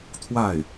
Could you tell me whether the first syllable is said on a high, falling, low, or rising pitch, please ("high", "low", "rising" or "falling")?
falling